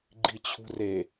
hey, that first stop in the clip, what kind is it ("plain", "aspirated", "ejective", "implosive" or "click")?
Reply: click